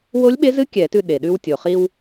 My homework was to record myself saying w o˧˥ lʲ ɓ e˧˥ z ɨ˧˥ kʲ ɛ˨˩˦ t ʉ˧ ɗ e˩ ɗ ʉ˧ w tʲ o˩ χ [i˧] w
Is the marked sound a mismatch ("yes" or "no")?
no